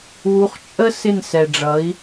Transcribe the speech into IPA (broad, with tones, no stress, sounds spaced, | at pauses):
w u˨˦ χ t͡ʃʼ ə˦ s ɪ˦˨ n s ɛ˨ ɖ͡ʐ ʌ˨˦ i̯